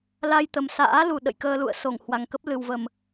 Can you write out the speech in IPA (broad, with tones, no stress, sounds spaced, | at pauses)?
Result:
l a˧ j t̪ ə˨˩ m s a̰ː˧˥ l u˨˩ ɗ ə̰˧˨ j k əː˧ l ṵ˧˨ ə̯ s o˧˩ ŋ h w a˨˩ ŋ k ə˦˥ p̚ l ɨ˨˩ w v ə˨˩ m